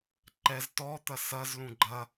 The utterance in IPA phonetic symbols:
ǃɛz tɔt̪ɐ sɐzlũ ɡ͡ǃɐ

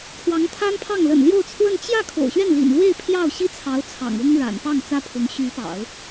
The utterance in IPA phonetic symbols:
kʰwɑ˧˥ŋt̪ʰa˥npʰɑ˥˩ŋ lə̰˨˩nljo˥˧ʊ̯t͡sʰwə˥˧n t͡ɕjä˥˩ kʰo̰˨˩ʊ̯ɕɥɛ˥˩nlḭ˨˩nlwe˥˧ɪ̯ pʰjɑ˥˩ʊ̯ɕi˥t͡sʰɑ˧˥ʊ̯ t͡sʰɑ̰˨˩ŋʊ˥ŋ ɻa̰˨˩npɑ˥˩ŋ t͡sä˥pʰʊ˧˥ŋ ɕy˧˥pɑ̰˨˩˦ʊ̯

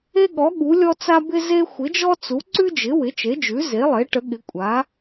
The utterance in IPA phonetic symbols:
e˥ɠɔ˩˥ ɠu˩˥lʲɔ˥t͡sa˥ bɪ˥ze˥ xʷɪ˩˥d͡ʒɔ˥t͡su˩˥ ǀʉ˥d͡ʒɪ˩˥ wɪ˩˥t͡ʃe˩˥d͡ʒʉ˩˥ ze˩˥lˠe˩˥ ʈə˩˥ɠɪ˩˥ kʷʼa˩˥

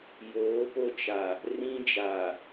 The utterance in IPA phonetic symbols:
joː˨˦ po˦t͡ʃa˨ | rĩ˦d͡ʒa˨

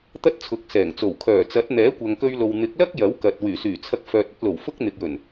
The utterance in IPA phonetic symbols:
t̪ɐ˥t̚t͡sʰʊ˨˥k̚sɛː˨˩ŋt͡so˨˩w kʰœː˨˩t͡sɐ˨˥t̚ n̪ɛː˨˥kʷɐ˨ŋkɵ˧ɥlo˨w n̪ɪ˨˥k̚lɐ˥k̚ jɐ˨˥wkɐ˨t̚wyː˨˩syː˨˩ t͡sʰɐ˧k̚fœː˨t̚ɐ˧t̚lo˨˩w fʊ˥k̚n̪ɪ˨k̚jɵ˨˩n

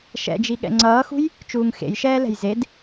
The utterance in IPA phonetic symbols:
ʃɛ̰d͡ʒiɠɛ̰ ŋ͡ǀʌːxṳj | t͡ʃuːŋxḛjʃɛːlɛ̤j zed

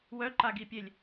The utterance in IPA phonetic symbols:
wœǃaɡipʲelʲ

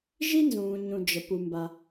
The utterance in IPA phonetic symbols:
ʒi˥nzũː˩ɲũ˩ d͡ʒə˩ pu˩mba˩

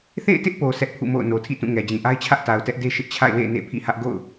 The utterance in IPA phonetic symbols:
θḛ˦˨ɪ̯tɪ˦ʔpo˨ sɛ˦ʔpʰṵ˦˨mo̰˦˨ʊ̯ no˨tʰḭ˦˨tũ˦˨ ŋɛ˨d͡ʑĩ˨ʔa˦ɪ̯t͡ɕʰä˦ʔ ta˨ʊ̯tɛ˦ʔde˦ ʃɪ˦ʔt͡ɕʰa̰˦˨ɪ̯wḛ˦˨ɪ̯ nḛ˦˨pʰḭ˦˨hä˦ʔ ɡo̰˦˨ʊ̯

